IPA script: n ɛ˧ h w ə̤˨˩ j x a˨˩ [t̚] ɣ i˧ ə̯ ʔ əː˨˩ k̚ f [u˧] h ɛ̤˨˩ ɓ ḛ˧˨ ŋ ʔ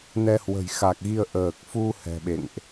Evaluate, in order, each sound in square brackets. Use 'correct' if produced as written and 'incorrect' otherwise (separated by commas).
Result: incorrect, correct